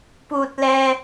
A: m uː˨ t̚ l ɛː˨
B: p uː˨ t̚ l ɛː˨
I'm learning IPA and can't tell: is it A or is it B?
B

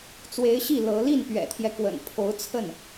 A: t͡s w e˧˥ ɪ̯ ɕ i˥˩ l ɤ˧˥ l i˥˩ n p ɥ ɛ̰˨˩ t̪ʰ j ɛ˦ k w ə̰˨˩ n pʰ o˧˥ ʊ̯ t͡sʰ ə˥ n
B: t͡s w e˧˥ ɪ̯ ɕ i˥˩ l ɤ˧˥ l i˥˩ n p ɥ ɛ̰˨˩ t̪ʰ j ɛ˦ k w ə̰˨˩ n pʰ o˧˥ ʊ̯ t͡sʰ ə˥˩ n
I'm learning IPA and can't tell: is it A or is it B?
B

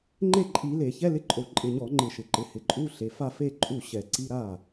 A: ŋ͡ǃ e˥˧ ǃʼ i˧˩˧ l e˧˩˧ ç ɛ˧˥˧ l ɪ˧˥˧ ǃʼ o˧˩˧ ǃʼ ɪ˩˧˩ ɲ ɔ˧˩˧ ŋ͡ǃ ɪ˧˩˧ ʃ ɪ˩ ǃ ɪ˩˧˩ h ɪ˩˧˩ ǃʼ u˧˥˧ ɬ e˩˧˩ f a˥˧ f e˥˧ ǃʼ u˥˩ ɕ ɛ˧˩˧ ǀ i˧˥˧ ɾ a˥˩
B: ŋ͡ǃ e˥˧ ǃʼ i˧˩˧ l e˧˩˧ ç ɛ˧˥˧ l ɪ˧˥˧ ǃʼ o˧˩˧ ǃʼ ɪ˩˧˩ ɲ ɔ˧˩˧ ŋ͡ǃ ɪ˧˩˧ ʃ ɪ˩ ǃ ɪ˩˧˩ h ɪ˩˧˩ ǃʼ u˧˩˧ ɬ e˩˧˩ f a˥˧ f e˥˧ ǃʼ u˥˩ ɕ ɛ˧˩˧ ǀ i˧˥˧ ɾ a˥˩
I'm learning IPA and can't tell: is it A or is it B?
A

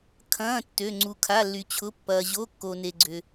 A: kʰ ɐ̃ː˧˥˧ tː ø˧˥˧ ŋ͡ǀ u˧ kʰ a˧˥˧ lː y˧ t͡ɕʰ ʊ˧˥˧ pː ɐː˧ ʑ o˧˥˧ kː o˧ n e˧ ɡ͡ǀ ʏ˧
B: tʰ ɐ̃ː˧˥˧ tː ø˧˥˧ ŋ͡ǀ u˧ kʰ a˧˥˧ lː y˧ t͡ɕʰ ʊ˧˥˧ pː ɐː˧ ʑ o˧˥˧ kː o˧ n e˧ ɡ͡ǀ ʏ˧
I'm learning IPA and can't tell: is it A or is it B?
A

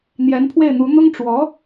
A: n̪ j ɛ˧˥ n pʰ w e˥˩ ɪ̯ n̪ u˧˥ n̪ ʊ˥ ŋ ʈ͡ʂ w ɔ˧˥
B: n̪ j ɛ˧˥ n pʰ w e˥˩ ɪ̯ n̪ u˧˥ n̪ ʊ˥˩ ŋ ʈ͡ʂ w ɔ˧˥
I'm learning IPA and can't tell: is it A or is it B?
A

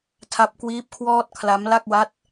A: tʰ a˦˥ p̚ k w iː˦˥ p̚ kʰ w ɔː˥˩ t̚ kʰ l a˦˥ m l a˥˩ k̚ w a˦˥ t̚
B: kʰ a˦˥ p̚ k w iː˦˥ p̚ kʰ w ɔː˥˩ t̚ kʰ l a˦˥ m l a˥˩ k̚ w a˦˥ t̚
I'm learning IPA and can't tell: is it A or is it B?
A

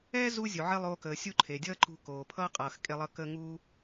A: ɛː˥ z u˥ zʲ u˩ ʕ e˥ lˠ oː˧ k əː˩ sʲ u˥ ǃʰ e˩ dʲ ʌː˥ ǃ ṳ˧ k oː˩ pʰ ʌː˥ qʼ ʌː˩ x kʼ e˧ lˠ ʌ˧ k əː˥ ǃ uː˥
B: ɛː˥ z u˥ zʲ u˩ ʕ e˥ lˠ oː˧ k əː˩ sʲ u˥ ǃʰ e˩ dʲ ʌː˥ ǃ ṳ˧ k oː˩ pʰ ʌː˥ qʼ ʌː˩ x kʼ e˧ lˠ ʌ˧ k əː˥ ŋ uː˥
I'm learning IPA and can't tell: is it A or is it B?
B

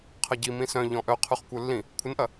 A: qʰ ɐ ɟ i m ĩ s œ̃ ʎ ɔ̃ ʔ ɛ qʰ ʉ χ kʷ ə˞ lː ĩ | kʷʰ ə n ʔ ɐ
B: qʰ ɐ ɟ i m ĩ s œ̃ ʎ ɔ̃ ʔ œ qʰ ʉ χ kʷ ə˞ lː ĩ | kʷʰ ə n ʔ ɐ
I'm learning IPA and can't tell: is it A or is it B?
B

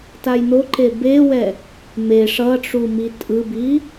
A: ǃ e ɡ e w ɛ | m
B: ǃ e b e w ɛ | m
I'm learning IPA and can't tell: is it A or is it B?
B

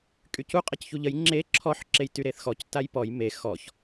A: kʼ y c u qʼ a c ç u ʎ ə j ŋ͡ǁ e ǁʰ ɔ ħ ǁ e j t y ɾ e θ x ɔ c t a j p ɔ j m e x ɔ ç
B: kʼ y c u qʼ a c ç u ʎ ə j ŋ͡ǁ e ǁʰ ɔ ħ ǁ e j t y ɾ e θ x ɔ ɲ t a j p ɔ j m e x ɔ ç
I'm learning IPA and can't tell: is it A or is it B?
A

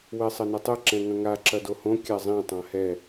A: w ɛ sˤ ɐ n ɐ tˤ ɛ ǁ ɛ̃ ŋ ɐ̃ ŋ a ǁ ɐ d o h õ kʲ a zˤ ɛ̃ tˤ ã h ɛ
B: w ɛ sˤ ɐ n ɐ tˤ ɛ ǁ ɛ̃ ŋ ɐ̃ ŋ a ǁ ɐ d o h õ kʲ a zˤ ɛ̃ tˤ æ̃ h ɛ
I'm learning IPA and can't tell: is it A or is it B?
A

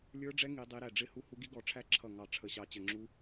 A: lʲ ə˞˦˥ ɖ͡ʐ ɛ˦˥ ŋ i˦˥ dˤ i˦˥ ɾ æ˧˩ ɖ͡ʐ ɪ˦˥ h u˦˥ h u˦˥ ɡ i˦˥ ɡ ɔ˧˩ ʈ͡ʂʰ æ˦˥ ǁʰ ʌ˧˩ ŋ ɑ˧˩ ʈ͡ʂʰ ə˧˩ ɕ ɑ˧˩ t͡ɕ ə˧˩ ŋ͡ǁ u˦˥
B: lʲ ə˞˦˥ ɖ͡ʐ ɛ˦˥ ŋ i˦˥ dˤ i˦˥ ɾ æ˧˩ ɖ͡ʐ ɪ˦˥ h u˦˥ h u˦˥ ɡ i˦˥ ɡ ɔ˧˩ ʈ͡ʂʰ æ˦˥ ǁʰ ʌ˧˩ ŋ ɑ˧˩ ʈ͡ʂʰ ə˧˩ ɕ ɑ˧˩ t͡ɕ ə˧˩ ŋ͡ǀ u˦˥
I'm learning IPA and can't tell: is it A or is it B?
A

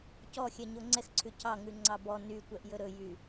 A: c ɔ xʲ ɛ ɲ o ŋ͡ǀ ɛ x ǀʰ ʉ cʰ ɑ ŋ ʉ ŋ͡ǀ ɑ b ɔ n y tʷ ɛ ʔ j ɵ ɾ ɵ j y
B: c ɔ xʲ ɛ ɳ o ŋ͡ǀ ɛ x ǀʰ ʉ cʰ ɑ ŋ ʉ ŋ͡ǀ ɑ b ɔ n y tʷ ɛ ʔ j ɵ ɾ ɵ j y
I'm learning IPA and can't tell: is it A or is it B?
A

